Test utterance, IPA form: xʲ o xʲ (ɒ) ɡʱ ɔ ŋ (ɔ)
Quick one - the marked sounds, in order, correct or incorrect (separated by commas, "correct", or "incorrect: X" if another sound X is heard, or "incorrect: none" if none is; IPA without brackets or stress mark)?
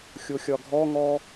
correct, correct